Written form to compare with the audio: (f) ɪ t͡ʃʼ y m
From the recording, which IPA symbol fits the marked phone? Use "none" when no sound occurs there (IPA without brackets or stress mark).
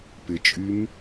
p